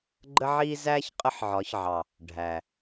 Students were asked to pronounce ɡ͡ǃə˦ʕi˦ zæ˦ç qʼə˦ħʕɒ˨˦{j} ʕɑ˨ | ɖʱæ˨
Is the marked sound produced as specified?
no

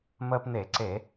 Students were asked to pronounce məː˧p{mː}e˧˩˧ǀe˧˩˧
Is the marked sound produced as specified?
no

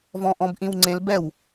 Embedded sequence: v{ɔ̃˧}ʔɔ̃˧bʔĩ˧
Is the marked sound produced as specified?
yes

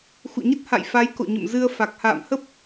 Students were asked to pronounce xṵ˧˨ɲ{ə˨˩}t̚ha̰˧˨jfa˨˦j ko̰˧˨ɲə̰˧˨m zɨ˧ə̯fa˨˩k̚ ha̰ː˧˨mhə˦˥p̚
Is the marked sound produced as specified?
no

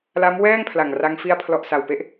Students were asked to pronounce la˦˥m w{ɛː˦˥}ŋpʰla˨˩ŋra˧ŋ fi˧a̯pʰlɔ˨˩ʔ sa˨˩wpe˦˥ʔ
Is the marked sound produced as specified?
no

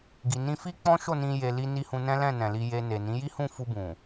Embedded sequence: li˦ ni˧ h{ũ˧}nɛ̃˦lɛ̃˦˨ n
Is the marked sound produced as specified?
yes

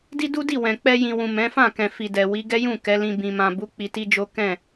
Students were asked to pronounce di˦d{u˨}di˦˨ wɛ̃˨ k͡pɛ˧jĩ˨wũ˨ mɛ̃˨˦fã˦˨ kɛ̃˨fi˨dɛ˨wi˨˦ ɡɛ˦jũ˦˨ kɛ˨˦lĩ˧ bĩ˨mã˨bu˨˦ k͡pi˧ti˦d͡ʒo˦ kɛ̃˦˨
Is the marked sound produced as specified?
no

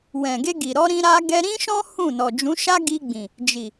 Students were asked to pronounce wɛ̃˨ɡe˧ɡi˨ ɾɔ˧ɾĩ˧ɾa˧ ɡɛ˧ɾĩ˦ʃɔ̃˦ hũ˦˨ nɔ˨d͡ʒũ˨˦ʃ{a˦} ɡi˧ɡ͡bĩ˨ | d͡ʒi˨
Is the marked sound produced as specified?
yes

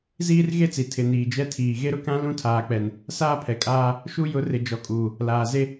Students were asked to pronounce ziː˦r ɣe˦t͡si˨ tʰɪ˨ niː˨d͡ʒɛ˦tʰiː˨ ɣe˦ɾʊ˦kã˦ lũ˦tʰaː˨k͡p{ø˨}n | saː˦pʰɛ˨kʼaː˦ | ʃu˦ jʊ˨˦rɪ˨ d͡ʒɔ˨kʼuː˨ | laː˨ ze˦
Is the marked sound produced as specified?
no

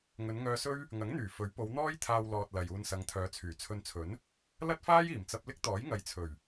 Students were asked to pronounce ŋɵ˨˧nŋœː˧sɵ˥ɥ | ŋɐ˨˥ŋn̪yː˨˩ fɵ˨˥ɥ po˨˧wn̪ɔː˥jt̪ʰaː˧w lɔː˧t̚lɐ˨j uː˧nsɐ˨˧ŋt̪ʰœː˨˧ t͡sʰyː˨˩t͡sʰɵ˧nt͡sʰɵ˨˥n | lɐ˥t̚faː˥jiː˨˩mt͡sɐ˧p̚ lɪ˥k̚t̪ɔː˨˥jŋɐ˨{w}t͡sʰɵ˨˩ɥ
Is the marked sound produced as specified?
no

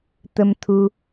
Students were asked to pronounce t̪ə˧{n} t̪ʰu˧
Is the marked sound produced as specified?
no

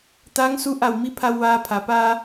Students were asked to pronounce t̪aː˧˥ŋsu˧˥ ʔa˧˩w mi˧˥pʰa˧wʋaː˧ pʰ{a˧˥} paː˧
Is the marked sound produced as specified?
no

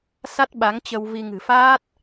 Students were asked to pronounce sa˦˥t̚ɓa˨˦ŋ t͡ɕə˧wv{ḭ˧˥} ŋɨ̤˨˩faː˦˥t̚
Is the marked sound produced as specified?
no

